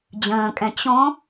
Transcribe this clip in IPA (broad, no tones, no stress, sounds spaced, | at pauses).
d͡ʑ ə̃ː kʼ ɛ̃ t͡ɕ õ